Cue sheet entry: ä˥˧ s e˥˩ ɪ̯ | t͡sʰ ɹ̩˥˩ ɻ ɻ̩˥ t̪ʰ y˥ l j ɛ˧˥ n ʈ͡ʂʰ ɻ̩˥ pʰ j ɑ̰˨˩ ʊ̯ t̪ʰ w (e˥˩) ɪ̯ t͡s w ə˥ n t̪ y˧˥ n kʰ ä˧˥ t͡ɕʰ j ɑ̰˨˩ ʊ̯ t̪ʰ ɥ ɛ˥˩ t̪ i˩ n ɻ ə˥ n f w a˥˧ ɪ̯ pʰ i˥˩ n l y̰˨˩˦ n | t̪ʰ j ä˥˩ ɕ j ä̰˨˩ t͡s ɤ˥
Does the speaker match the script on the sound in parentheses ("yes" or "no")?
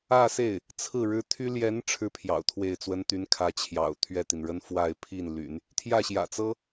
yes